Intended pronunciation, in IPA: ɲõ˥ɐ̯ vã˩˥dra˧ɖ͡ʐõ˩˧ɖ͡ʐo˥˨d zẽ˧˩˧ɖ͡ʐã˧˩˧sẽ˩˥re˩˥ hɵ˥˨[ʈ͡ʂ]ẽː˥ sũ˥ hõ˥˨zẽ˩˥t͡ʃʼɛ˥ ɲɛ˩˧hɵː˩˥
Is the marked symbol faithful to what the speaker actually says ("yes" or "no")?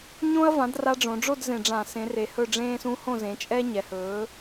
no